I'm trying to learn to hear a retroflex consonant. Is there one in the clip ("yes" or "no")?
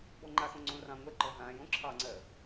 no